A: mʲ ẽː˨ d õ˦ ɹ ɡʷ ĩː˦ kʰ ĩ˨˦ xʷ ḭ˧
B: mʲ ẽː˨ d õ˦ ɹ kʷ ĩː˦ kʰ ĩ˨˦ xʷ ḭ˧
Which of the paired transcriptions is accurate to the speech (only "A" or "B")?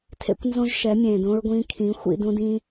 A